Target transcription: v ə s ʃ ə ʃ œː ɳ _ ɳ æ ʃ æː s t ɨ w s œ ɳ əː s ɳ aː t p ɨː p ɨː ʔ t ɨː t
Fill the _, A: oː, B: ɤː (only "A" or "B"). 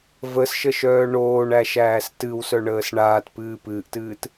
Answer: A